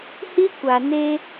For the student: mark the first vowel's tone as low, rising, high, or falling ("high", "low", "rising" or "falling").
high